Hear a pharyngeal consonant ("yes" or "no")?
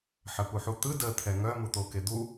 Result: yes